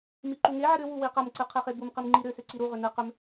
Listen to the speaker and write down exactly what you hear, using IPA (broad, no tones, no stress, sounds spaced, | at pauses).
m i ǃ u ŋ e ʕ ɨ ɾ ʏ w u w i q ɐ m ǀ ɨ qʰ e χ e b u m q i m ŋ͡ǃ i ɾ ʏ s ʏ ǀ i ɾ u ʁ ʏ n ɨ q ʏ m